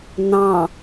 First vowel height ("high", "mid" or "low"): low